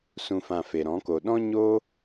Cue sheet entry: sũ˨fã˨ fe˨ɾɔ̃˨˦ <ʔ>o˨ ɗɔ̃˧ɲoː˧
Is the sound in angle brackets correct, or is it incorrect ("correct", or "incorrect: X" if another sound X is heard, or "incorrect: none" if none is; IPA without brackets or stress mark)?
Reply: incorrect: k